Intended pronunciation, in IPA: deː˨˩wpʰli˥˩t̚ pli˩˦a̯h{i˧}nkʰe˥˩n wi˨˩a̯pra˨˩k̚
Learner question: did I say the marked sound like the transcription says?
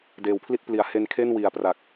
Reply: no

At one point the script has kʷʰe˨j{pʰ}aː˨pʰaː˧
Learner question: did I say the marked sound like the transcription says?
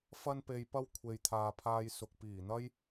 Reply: no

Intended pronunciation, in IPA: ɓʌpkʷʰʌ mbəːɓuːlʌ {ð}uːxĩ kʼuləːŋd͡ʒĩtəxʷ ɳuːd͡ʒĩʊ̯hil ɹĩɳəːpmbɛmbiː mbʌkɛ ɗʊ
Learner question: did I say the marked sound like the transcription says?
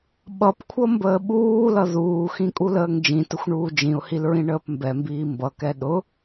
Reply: yes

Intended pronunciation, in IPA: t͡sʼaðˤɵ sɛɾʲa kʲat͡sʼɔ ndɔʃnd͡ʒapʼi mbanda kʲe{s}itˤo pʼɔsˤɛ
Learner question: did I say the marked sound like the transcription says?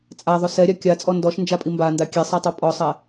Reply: no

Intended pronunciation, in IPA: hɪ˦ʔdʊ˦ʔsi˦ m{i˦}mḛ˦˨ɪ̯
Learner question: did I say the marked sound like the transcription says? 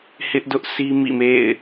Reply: no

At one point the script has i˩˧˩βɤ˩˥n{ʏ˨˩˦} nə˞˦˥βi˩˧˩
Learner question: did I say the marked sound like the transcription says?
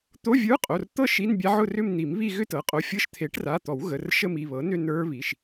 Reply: no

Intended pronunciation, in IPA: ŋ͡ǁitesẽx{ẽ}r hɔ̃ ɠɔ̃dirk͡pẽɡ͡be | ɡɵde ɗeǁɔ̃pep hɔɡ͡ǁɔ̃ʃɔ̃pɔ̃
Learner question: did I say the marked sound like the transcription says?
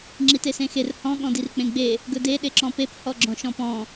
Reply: no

